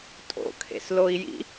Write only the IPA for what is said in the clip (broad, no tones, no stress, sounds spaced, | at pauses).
tʼ o̰ kʰ ḛ s l o i̯ j ḭ